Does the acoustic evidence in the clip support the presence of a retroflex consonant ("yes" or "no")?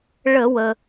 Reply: yes